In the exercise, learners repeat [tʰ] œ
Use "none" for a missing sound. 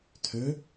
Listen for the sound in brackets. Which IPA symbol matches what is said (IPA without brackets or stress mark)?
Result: tʰ